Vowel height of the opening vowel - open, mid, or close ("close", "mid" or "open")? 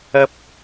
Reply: open